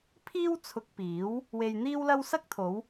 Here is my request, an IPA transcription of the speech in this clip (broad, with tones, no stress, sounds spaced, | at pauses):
pʰ iː˥ w t͡sʰ ʊ˧ k̚ p iː˨˥ w | w e˧ j n̪ iː˥ w l ɐ˥ w s ɐ˥ k̚ t̪ʰ o˨˧ w